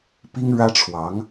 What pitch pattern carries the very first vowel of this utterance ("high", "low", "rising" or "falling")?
high